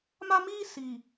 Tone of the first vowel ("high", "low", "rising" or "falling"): high